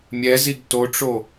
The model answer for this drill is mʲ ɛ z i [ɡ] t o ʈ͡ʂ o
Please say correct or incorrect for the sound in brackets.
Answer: correct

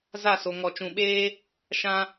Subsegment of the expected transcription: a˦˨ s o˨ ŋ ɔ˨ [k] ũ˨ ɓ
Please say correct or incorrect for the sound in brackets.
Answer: incorrect: t͡ʃ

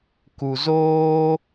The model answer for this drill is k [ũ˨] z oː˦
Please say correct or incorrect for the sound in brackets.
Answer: incorrect: u˨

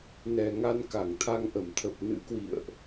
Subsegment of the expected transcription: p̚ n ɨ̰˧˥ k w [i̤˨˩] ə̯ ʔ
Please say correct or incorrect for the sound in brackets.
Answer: incorrect: ḭ˧˨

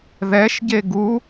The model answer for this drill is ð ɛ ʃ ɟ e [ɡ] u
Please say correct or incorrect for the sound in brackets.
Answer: correct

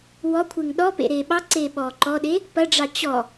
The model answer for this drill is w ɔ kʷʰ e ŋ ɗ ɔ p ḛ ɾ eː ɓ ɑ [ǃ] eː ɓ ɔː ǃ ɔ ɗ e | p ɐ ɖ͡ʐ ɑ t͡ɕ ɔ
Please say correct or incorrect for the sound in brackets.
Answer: incorrect: ǀ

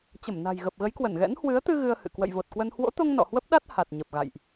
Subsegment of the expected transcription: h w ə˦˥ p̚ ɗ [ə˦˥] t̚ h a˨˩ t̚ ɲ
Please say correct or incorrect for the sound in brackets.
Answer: incorrect: a˦˥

